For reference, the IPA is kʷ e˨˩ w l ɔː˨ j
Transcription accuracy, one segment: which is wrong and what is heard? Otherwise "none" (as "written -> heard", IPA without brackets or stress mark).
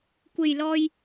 w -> j